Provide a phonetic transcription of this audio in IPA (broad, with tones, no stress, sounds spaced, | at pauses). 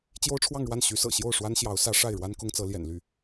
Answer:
t͡ɕ j o˥ ʊ̯ ʈ͡ʂʰ w ɑ˥˧ ŋ ɻ w a˥˩ n ɕ y˧˥ s ɤ̰˨˩ ɕ j o˥˩ ʊ̯ ʂ w a˥ n ɕ j ɑ˧˥ ʊ̯ s ä˧˥ ʂ a˥˩ ɪ̯ ɻ w a˥ n k ʊ˥ ŋ t͡s ɤ˧˥ l j ɛ̰˨˩ n l y˥˩